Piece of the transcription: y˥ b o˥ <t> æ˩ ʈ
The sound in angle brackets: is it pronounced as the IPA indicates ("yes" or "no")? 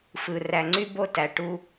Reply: yes